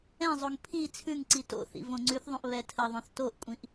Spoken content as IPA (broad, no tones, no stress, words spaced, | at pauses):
ɛ̃zˤoŋ pʰi t͡sʰʉŋǀi to̰θḭ võŋ͡ǀʉθðˤõʔ βɛtʰəðˤõθ toʔkʷʼĩʔ